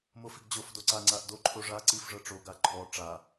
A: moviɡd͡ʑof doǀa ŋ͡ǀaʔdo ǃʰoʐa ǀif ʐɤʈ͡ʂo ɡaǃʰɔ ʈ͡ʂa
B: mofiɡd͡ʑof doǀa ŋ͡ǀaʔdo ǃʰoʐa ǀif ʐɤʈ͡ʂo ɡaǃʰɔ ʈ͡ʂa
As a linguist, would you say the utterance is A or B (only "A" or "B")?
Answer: B